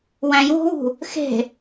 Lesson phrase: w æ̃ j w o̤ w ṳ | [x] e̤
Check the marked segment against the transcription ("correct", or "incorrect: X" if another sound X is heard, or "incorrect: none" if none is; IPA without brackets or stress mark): correct